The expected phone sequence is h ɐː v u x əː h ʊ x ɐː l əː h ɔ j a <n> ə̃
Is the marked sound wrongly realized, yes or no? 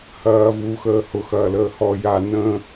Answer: no